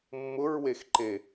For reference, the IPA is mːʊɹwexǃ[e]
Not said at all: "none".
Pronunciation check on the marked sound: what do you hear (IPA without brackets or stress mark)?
e